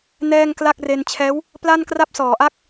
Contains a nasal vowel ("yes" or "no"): no